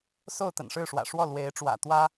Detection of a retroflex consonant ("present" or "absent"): present